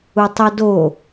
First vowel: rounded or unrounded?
rounded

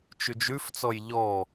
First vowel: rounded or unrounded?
rounded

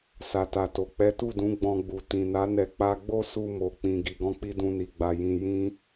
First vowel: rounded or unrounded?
unrounded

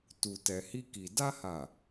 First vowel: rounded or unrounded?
rounded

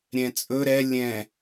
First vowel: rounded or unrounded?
unrounded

